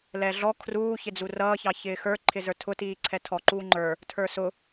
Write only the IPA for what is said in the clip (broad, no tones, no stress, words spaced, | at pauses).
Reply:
lɛɮɔ kʰruːçɪd͡zu rʌːçɑ çɪːxə˞ ǃʰɪzə˞tʰʊtiː ǀʰɛtʰɔ ǃuːŋ͡ǃə˞ | tʰə˞sʊ